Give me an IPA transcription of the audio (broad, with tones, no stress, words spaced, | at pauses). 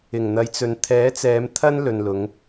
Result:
ɪ˨˩ŋn̪ɐ˨˧jt͡sɵ˨n t̪ʰɛː˨˥t͡sɛː˨˧m t̪ʰɐ˥n lɵ˨nlʊ˨˧ŋ